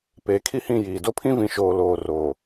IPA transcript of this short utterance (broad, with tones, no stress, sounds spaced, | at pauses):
p e˨˦ kʰ i˦ h ĩ˦˨ j iː˨ d o˦ pʰ ĩ˦ v ĩ˨ ʃ oː˨ l oː˨ r oː˨